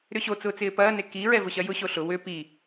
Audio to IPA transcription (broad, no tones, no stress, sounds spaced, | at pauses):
ɾ ʏ ɕ o t͡s ʊː t͡s ɪː p ɐː n e k i ɹ ɛ v ʊ ɕ ɐ j ʊ ɕ o ɬ ʊ w ʏ p i